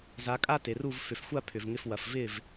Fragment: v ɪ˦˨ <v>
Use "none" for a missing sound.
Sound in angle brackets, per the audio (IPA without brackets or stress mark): v